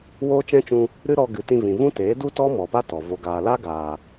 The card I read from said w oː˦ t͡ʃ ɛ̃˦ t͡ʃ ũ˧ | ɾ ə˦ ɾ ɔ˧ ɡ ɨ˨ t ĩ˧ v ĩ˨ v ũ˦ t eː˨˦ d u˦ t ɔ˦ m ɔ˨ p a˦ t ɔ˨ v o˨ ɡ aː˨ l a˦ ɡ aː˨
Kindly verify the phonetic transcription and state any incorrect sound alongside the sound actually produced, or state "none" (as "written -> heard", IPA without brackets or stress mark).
ə˦ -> ɨ˦